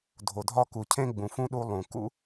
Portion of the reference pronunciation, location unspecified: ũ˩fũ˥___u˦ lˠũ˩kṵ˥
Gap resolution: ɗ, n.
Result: ɗ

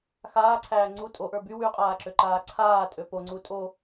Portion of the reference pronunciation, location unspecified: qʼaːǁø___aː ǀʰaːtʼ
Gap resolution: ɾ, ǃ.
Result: ǃ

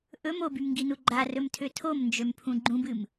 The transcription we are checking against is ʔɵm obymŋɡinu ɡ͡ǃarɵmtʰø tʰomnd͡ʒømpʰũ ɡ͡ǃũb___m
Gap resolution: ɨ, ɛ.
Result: ɨ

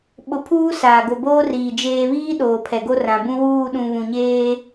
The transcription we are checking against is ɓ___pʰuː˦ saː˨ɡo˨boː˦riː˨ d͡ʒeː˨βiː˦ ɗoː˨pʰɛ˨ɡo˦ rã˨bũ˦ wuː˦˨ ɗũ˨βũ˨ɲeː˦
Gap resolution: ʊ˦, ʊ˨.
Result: ʊ˨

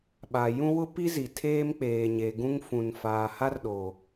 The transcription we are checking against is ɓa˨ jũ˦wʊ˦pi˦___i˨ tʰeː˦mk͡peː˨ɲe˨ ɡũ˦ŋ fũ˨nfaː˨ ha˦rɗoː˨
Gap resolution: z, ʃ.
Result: z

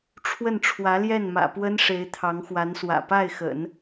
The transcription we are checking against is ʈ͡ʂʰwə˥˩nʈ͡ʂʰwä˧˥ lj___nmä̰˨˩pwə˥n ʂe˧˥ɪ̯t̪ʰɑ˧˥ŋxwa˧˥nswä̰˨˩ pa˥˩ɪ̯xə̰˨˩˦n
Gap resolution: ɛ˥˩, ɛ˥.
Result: ɛ˥˩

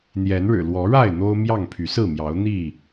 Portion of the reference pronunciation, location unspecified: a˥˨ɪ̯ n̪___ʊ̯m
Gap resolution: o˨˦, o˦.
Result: o˦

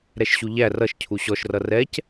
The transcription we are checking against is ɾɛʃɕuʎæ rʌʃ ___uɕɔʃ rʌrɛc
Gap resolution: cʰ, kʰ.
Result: cʰ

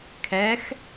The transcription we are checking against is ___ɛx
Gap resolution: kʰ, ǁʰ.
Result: kʰ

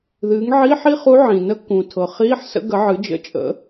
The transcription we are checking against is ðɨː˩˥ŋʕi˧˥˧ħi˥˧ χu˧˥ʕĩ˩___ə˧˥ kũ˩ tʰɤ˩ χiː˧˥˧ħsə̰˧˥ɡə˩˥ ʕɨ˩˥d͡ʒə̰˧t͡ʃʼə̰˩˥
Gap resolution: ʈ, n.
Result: n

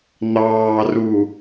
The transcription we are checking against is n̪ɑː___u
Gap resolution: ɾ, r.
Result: r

